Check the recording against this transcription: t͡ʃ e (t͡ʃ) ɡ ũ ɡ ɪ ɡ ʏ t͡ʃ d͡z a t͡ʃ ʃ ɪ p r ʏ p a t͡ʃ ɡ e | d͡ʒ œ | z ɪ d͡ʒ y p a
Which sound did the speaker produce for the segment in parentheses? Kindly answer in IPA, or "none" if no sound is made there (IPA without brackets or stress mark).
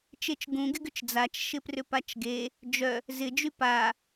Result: t͡ʃ